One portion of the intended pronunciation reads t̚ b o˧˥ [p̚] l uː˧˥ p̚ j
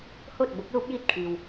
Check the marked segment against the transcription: incorrect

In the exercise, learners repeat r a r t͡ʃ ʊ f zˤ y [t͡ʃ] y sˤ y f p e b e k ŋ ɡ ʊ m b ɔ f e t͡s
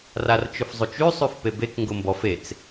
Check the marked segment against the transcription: correct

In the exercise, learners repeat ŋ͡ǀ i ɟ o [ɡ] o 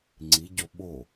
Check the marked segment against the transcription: incorrect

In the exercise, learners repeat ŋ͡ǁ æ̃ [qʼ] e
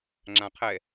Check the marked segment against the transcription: incorrect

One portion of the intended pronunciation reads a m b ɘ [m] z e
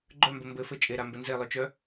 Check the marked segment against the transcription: incorrect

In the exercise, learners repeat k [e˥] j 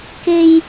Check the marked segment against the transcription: correct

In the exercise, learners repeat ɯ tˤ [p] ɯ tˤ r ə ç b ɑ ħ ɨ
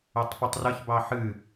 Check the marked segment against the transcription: correct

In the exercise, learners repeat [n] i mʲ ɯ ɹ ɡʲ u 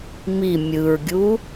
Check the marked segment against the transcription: incorrect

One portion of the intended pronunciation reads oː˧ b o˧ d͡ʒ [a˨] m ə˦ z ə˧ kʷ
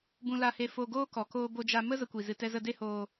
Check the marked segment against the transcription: incorrect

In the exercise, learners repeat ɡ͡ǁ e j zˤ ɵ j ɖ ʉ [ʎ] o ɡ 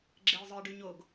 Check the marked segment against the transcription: incorrect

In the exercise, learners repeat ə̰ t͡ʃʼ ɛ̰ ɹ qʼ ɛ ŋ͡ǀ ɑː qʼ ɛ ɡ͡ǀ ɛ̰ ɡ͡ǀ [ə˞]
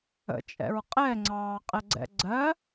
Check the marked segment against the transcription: incorrect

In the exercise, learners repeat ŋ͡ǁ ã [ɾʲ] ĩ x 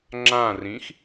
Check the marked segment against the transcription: incorrect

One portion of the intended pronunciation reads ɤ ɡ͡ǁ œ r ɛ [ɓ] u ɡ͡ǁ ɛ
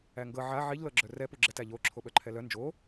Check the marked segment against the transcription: incorrect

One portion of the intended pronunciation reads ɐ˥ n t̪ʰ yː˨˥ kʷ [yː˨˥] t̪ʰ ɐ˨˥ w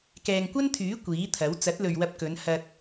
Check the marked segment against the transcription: incorrect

